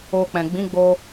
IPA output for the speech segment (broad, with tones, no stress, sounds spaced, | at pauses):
o˧ k͡p ɛ̃˨ ɡ͡b ĩ˨˦ ɡ͡b o˧